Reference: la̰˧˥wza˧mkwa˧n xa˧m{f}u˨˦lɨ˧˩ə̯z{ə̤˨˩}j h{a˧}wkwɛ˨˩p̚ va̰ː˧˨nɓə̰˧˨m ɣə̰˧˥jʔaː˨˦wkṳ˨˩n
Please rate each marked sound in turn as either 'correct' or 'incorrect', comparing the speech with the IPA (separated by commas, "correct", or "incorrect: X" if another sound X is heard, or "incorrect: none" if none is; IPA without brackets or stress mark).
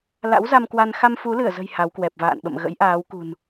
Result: correct, correct, incorrect: a˨˦